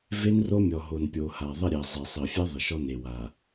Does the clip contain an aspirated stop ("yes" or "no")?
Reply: no